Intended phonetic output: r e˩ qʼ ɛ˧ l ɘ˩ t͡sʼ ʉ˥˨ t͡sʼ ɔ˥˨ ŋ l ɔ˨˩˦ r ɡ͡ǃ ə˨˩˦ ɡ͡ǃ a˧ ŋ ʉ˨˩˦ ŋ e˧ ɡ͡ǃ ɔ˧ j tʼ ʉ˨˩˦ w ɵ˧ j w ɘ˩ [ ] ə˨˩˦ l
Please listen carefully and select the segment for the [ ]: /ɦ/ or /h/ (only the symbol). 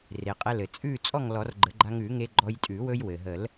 ɦ